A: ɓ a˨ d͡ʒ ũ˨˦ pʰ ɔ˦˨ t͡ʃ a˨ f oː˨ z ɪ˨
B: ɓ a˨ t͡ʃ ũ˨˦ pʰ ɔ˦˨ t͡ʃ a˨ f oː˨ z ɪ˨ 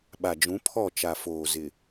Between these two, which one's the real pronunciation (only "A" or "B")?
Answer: A